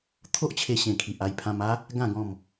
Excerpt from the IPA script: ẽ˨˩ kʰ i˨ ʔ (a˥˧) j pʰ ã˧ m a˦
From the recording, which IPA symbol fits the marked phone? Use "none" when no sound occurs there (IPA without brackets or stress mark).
a˧